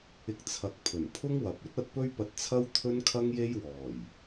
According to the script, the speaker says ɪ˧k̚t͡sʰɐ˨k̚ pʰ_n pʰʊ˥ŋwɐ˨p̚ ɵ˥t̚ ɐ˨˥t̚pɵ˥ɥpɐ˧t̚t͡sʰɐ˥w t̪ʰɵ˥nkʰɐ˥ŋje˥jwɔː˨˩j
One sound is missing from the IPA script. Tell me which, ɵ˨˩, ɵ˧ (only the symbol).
ɵ˨˩